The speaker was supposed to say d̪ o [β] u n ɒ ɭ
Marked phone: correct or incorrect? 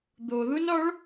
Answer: incorrect